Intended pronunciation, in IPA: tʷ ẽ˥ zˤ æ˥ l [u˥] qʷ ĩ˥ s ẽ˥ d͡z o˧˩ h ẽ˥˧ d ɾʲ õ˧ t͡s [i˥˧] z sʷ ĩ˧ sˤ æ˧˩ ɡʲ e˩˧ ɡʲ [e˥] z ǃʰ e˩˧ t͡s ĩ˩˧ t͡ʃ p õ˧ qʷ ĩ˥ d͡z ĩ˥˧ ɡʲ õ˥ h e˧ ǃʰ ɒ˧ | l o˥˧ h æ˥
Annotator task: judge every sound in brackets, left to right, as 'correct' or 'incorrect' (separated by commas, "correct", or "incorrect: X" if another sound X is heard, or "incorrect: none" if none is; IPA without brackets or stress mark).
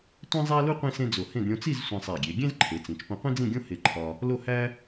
correct, correct, incorrect: ẽ˥